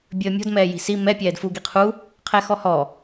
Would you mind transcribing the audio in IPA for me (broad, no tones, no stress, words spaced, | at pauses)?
bʲəːmʲɔ̤d mɛːji̤si mɛ pʲɛːdfu ɡiqʰu | qʰɛxɔhɔ